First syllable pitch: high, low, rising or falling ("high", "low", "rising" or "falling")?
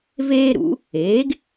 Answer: high